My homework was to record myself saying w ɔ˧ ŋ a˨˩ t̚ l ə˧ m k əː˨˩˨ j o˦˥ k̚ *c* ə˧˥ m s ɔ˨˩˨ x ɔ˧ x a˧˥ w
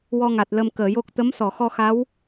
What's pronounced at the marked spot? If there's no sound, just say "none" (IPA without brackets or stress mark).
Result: t̪